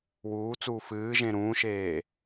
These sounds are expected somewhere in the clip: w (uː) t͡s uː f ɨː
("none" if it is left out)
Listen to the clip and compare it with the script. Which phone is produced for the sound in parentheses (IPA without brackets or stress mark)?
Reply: uː